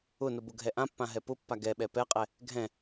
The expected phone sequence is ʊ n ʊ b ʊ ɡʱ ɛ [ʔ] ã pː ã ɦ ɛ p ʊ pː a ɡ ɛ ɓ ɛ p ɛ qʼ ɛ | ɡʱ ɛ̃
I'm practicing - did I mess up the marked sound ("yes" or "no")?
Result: no